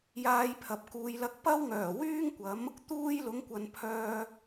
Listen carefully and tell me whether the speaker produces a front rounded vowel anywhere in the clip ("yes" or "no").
yes